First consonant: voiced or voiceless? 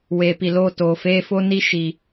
voiced